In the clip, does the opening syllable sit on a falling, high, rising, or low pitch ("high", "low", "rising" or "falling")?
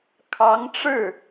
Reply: rising